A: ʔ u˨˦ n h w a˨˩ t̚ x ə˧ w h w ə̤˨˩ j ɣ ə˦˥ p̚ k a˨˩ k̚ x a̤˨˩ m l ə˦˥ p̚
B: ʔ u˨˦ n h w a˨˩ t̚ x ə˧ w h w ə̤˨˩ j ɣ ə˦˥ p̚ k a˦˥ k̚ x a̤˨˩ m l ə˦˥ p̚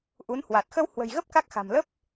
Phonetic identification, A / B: B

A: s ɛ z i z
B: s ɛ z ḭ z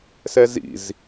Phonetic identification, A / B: B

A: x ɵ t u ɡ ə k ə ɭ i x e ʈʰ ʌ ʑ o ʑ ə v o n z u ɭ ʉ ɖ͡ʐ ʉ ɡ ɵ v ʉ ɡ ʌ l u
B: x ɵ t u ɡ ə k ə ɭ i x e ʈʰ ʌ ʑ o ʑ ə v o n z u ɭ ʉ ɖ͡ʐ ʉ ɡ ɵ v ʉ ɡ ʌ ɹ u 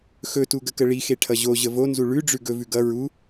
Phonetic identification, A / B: B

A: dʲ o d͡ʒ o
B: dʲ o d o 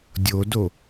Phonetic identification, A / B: B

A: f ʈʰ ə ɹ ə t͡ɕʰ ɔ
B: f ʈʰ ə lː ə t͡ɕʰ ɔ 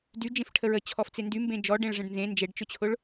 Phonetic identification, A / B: A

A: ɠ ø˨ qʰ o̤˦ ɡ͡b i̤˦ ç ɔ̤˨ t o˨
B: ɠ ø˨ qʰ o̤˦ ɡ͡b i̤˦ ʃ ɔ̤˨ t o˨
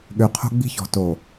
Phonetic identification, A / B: A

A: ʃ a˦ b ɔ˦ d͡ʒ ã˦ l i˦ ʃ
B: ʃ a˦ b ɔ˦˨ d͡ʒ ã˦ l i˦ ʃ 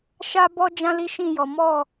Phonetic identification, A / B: A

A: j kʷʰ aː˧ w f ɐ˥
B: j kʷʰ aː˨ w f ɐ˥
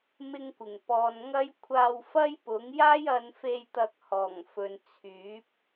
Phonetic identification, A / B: A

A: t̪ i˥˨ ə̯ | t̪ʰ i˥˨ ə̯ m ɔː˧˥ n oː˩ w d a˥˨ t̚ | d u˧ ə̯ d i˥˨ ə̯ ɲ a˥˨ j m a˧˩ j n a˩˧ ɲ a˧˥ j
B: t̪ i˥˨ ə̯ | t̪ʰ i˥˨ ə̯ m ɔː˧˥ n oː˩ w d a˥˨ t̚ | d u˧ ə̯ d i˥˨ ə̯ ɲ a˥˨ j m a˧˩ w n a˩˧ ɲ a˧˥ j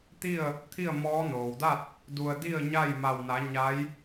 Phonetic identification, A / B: B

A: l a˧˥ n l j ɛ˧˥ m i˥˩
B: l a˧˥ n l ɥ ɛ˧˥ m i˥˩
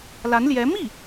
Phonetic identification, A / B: A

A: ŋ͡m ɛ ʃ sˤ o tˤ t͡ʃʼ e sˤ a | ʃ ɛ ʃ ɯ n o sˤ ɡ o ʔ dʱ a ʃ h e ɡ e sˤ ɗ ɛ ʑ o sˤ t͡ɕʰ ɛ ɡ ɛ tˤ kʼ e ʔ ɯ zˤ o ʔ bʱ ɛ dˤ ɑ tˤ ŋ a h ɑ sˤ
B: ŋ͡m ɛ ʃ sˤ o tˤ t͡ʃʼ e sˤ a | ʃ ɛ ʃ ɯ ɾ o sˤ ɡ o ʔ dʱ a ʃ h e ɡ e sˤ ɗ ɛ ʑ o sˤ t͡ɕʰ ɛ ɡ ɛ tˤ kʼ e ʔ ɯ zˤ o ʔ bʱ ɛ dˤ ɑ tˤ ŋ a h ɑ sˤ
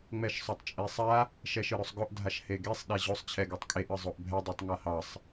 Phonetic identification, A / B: B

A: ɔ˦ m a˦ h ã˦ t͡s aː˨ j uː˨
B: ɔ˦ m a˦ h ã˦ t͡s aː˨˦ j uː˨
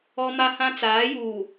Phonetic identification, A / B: B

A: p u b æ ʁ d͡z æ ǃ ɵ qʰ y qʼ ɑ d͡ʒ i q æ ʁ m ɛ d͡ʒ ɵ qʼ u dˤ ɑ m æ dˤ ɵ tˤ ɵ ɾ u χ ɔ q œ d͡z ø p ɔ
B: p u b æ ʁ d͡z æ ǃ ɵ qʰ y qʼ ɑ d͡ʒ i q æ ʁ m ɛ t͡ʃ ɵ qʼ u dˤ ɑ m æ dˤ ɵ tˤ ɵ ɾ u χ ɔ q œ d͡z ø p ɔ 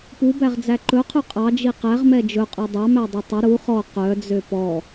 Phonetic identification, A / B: A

